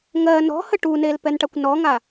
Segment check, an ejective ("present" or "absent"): absent